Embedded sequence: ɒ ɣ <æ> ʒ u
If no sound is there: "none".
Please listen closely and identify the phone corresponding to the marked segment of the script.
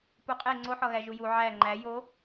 æ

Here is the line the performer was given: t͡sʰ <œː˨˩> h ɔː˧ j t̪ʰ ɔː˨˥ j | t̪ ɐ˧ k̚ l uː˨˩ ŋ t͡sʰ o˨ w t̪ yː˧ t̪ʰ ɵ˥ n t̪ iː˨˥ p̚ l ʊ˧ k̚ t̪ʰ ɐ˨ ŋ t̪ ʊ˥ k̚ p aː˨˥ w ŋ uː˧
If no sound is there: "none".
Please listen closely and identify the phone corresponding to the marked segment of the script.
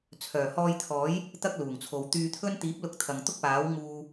œː˨˩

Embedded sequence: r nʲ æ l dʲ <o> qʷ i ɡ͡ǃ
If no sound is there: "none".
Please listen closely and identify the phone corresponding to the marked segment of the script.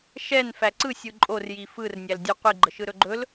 u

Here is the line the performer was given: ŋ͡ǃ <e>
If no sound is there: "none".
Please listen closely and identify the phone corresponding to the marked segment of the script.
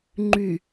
y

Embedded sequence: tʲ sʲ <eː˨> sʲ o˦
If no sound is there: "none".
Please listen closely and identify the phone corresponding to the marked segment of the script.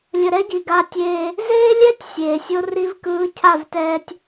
eː˨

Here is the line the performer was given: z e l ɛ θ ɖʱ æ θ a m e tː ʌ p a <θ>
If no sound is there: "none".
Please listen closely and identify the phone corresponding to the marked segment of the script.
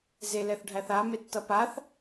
θ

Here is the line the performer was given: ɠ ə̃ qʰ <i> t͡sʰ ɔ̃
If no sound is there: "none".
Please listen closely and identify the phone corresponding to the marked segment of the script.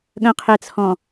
e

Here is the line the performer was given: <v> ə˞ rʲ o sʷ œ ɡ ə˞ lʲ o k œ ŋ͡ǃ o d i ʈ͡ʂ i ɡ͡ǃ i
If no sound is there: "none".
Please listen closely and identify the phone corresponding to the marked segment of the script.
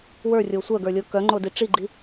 w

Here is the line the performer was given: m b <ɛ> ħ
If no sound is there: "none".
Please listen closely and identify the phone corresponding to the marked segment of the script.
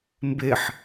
e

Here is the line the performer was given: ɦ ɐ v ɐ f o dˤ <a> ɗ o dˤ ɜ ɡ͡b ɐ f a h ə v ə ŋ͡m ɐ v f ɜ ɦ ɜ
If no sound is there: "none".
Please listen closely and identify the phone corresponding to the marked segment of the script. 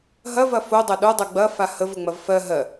ɐ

